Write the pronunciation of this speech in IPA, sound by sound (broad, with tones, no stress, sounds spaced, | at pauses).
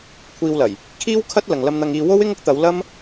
kʷʰ iː˧ w l ɐ˨˩ j | kʰ iː˥ w kʰ ɐ˥ t̚ l ɐ˨ ŋ l ɐ˧ m n̪ ɐ˧ ŋ iː˧ w o˥ w ɪ˥ ŋ ʊ˥ k̚ t̪ ɐ˨˧ w l ɐ˥ m